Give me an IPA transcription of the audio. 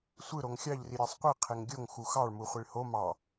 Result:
sʷ ɯ ɾ o ŋ xʲ ɑ ʎ r i ɾʲ æ sˤ qʷ i qʰ e ŋ ɡʲ o ŋ x u x ɑ ɭ m u χʷ i ɭ h o m ɑ

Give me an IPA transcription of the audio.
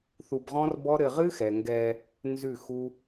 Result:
θ u˧ b ʁ ɔ̃˦ r b ɔ˦ ɾ ɘ˧ ʁ ɨ˦ x ɛ˨ ŋ ɡ ɛ˧ | n z ʉ˦˨ x u˦

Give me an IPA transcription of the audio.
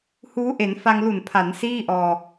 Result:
h uː˦˥ ʔ e˩˦ n f a˧ ŋ l u˨˩ n pʰ a˩˦ n s iː˥˩ ʔ ɔː˧

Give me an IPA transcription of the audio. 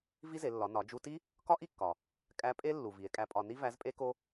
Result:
v i˥ z e˩˧ lː ɒ˩˧ n ɒ˩˧ d͡ʒ u˧ t i˥ | k ɒ˥ ʔ i˥ kː ɒ˩ | kʼ æ˧˥ pʼ e˥ lː u˩ v i˩˧ e̯ kʼ æ˧˥ pʼ ɒ˧ n i˥ v æ˧˥ z pʼ e˥ k o˥

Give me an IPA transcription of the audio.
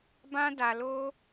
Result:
b ã˦ d a˧ l o˦

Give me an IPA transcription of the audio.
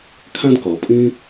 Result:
kʰ æ̃˦ d k ʌ˨ pʼ ĩ˦

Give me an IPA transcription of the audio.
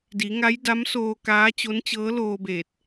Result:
d i˩˧ ŋ a˧˥ j d a˧˥ m s oː˧ k aː˧˥ t͡ɕ o˧˥ n t͡ɕ ɤː˧˥ l oː˧ b eː˧˩ t̚

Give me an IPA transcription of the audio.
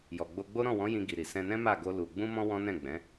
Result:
j ɔ˨ ɡ͡b o˧ ɡ͡b o˦ ɾ ɔ̃˦˨ w ɔ̃˨˦ j ĩ˧ ɡ i˨ ɾ i˨ s ɛ̃˧ n ɛ̃˦ m a˦˨ ɡ o˧ l u˨ ɡ͡b ũ˧ m ɔ̃˧ w ɔ̃˦ n ɛ̃˦˨ ɡ͡b ɛ̃˨˦

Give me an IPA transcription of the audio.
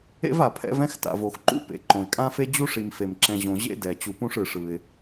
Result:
ḛ˥ v a˩ pʰ ɛ̰˦ v ɛ̃˥ x t a̰˩ v o˩ x ǃ ṵ˥ p ḛ˩ ǃ õ˩ ɪ̯ kʼ ã˥ f e˥ d͡ʑ u˥ ʂ i˨ m f e˩ m ǁ ɛ̃˨ ʑ õ˨ ʑ ḛ˥ d ɛ˩ t͡ɕ u˨ p ũ˦ ʂ ɯ˩ ʂ ɯ˩ ɪ̯

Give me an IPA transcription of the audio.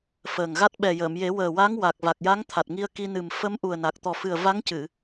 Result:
f əː˨˩ ŋ ɣ a˦˥ t̚ ɓ ɛ˨˩ j əː˨˩˨ m j e˨˩˦ w əː˨˩ w a˧˥ ŋ w a˨˩ k̚ v a˨˩ k̚ j a˧˥ ŋ t̪ʰ a˨˩ t̚ ŋ i˧ ə̯ k i˧ n ɨ˨˩ m f ə˧˥ m ʔ u˨˩ ə̯ n a˨˩ k̚ t̪ ɔ˨˩ f ɨ˨˩ ə̯ v a˧˥ ŋ c ɨ˨˩˨

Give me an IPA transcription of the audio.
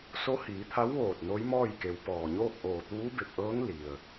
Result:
s o˧˥ h iː˩˧ t̪ʰ a˧˥ w ʋ oː˧˩ t̚ n o˧˥ j m ɔː˥˨ j k e˩˧ w p ɔː˩ ɲ oː˥˨ k̚ ʔ oː˧˩ t̪ uː˧˥ b e˧˩ p̚ ʔ ɤː˧˥ ŋ l i˩ ə̯

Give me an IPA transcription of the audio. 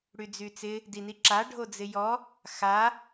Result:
ɽ y d͡z y t͡s ɪ | d i n i ǁ a ɖʱ o d͡z ɪ j ɔ | x a

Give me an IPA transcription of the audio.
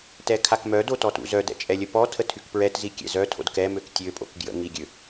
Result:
t ɛ kʰ a k m œ d o t ɔ t ṵ z œ d ɛ̰ t͡ʃʼ ɛ lʲ ə p ɔ tʰ ə tʰ y k p ɹ ɛ t z i kʲ ɛ̰ z œ tʰ o̰ d k ɛ m ø k tʲ ø pʼ o̰ k ɡ j ə̰ ŋ i ɡʲ ø

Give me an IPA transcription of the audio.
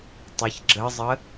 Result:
tˤ ʌ ç ɡ͡ǁ ə zˤ ə

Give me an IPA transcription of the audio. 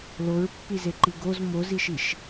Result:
l o ɹ pː i z e ǃ i ɡ o z m o z i ʃ i ʃ

